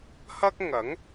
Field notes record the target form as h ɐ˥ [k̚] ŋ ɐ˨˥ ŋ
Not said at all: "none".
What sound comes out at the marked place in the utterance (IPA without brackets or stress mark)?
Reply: k̚